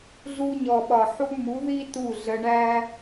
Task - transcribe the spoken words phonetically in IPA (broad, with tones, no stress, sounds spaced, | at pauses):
ɮ u˧ ɲ ɔ˨ ɓ ɒ˨ ħ u˧ m u˨˦ ð i˦ t u˦˨ ɮ ə˧ ɳ æ˦